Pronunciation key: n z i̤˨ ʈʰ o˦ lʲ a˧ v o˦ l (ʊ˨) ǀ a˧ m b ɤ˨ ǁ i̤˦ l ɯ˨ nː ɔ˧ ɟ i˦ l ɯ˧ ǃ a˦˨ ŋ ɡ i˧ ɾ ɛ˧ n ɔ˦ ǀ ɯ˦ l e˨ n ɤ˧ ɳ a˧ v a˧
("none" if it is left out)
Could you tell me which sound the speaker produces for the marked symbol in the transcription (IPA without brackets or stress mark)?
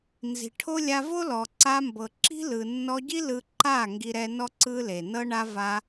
ɔ˨